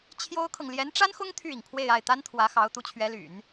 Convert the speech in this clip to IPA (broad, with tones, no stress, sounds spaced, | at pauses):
t͡ɕʰ j o˥ ʊ̯ kʰ ɤ˨ ŋ l j ɛ˧˥ n ʈ͡ʂ a˥ n x ʊ˥ ŋ t̪ʰ y˥˩ i˩ ŋ pʰ w e˥˧ ɪ̯ a˥˩ ɪ̯ t̪ a˥ n t̪ʰ w ä˧˥ x ɑ˧˥ ʊ̯ t̪ u˧˥ t͡ɕʰ ɥ ɛ˧˥ l y̰˨˩˦ n